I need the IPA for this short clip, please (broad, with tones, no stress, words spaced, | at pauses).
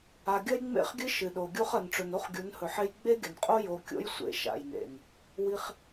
a˨ɡʲɐ˦jŋ͡mḛ˦˨χɡʲɨ˦ ʃɨ˨ɗo˨ɡʲu˦χ ɐ˨nʈ͡ʂɵ˨no˦χ ɡʲu˨˦nhɵ˨ħe˦j ɡ͡be˦ɡʲɐ˨nqʼo˦ jo˨kʲo̰˦jsʷḛ˨ ʃa̰˨jnḛ˨n | wi˦χ